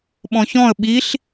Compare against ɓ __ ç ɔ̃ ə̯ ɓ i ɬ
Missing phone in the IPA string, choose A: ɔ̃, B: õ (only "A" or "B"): A